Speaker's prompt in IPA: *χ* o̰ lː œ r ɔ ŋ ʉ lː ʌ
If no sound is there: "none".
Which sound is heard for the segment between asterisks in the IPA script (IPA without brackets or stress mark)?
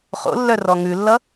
χ